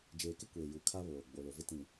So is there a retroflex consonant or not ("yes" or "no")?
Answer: no